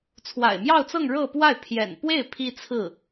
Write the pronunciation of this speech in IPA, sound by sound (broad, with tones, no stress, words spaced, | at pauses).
t͡sʰwa̰˨˩ɪ̯mjɑ˥˧ʊ̯t͡sɤ˥˧ŋ ɻɤ˥˧pwa˥˩ɪ̯ pʰjɛ̰˨˩npwe˥˩ɪ̯ pʰi˥t͡sʰɹ̩˥˩